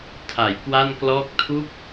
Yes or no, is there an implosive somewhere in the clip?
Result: no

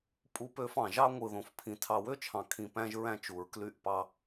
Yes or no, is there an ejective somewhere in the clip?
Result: yes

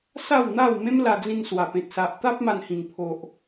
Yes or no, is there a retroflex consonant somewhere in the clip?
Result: no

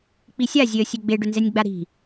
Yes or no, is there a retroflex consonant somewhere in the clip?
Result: yes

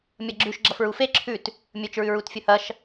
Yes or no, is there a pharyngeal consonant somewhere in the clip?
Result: no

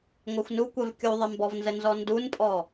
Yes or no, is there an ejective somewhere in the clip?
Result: yes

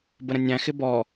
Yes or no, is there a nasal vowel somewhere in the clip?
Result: yes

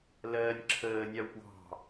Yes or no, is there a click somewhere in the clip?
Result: yes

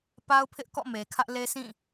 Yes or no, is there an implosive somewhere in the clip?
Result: no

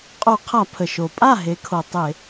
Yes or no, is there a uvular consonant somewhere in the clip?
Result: yes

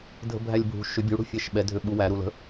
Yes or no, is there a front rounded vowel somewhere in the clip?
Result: yes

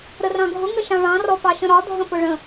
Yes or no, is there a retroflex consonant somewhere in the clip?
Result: yes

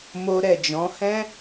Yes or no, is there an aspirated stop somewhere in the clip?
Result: no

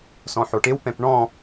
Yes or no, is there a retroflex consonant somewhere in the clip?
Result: yes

